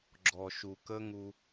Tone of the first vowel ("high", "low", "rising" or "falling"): low